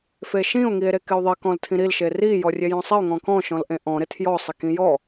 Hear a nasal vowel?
yes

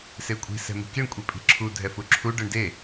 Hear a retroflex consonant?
yes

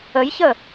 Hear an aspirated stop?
no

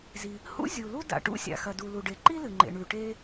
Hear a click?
yes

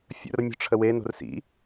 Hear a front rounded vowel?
no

